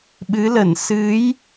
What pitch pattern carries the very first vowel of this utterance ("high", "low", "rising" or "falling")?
rising